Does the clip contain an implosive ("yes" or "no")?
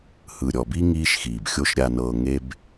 no